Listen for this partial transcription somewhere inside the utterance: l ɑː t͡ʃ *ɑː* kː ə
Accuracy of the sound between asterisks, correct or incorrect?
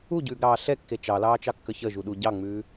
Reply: incorrect